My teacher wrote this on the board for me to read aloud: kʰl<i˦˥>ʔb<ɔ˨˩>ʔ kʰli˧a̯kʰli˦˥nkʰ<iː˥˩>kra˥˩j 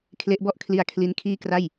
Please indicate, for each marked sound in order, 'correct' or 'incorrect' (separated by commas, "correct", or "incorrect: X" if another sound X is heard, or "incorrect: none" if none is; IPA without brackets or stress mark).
incorrect: e˦˥, incorrect: ɔ˥˩, correct